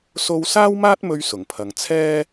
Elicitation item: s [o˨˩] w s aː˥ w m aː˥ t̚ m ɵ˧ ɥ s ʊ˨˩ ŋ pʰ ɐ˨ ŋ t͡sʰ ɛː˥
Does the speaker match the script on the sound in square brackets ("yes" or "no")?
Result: no